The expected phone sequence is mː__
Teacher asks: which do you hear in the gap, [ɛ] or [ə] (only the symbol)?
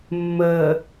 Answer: ə